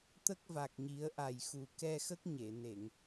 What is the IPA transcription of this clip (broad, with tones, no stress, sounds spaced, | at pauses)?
t̪ ə˦˥ k̚ v a˨˩ k̚ ɲ i˨˩˦ ə̯ ʔ a˨˩ j x u˨˩ k ɛ˧ x ə˦˥ k̚ ɲ e˨˩˨ n e˨˩˨ ŋ